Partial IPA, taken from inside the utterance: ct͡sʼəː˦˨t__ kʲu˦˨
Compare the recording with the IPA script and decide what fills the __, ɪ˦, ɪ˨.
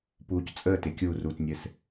ɪ˨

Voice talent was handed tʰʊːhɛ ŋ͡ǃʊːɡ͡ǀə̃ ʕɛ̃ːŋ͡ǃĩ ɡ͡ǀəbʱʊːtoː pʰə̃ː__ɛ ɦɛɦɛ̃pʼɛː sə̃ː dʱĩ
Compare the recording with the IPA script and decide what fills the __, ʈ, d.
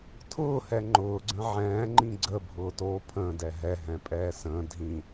d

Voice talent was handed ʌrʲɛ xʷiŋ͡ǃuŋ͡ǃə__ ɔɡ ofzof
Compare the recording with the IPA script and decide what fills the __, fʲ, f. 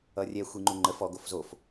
f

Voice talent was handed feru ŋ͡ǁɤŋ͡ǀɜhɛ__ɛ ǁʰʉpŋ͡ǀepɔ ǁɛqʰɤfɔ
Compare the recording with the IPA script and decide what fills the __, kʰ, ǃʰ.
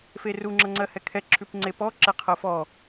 kʰ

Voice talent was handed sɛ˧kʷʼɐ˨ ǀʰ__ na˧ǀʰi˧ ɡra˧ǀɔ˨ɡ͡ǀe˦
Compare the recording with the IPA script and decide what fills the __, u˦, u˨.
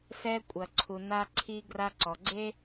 u˨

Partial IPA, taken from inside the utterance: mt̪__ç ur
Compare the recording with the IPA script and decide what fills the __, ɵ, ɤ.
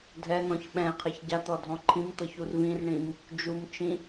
ɤ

